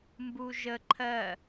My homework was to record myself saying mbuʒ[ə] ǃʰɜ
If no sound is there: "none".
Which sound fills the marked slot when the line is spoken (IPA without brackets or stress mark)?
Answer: ə